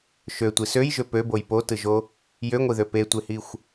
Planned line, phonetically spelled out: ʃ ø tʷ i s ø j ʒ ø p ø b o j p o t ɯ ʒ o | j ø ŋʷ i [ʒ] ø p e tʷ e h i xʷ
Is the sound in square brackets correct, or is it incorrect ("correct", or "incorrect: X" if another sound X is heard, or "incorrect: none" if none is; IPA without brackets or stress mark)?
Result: incorrect: ð